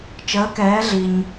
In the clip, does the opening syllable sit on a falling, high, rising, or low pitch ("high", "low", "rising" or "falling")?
rising